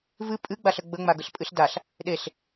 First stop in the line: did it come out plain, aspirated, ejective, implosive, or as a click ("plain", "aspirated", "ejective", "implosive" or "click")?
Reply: ejective